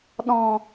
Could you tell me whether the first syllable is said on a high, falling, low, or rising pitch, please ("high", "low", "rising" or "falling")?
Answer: low